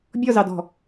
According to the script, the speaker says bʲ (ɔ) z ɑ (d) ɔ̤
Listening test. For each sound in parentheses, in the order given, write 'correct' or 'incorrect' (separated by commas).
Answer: correct, correct